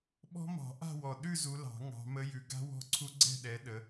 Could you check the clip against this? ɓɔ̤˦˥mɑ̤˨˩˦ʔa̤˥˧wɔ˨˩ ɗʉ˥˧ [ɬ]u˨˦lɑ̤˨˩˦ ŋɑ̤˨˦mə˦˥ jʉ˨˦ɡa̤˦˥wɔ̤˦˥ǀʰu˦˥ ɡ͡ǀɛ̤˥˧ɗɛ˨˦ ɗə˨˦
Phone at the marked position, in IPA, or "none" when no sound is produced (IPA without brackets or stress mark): z